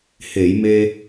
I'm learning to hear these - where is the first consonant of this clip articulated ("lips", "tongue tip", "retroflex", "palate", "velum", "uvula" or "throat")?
throat